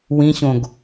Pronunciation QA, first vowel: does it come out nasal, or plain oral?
nasal